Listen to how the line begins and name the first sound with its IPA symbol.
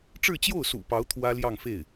ʈ͡ʂ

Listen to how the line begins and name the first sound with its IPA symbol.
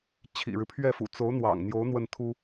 t͡ɕʰ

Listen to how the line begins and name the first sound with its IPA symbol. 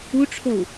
u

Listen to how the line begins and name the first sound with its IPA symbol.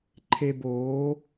ǃʰ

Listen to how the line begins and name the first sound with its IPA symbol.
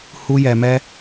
h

